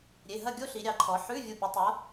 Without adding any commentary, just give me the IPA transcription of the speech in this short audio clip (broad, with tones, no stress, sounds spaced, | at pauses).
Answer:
ɾʲ e˩˧˩ ɦ ɐ˥˨ ɡʲ o˥ ɬ i˨˦ ɾʲ ɑ˨˦ ǃʰ ɔ˨˦ ħ ʉ˧˥˧ vʲ u˧˩ pʲ ə˨˦ tˤ o˨˦